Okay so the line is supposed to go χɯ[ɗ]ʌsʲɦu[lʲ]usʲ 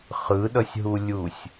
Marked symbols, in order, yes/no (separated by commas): yes, yes